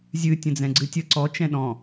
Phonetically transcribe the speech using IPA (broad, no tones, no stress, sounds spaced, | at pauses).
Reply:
zʲ ɨ tʲ ə̃ d͡z ɛ̃ ɡ͡ǀ ɨ tʲ ə ǀ ɔ t͡ʃ ɛ̃ ɗ ɔ̃